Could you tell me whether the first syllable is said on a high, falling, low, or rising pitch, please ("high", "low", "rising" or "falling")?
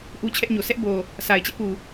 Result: high